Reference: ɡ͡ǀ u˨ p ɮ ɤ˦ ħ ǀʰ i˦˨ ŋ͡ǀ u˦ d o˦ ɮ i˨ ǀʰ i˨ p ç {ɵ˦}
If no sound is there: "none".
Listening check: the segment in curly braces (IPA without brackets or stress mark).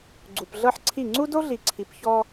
ɔ˦